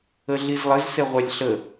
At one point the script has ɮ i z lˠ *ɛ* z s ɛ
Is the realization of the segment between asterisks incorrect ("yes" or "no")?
yes